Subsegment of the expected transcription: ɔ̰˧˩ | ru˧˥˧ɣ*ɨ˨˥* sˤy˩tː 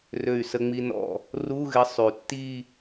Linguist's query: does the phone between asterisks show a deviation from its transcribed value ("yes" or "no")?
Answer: yes